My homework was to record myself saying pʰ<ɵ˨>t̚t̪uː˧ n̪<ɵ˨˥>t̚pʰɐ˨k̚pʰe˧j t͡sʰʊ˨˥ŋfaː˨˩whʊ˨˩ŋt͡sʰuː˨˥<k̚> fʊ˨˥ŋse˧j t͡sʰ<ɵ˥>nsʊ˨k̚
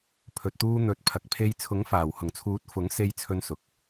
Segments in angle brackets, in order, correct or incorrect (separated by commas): correct, correct, incorrect, incorrect